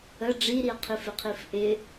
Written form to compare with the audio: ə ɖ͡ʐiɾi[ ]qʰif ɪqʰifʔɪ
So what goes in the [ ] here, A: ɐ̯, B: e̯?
A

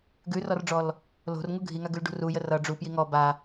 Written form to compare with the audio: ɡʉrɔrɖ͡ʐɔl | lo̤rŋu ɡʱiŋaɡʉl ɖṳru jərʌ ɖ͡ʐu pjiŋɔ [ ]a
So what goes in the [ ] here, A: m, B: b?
B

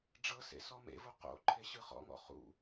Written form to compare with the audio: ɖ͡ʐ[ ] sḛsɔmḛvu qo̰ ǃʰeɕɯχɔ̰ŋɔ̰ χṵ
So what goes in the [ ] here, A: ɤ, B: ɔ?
A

